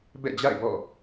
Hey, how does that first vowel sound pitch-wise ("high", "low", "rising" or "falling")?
falling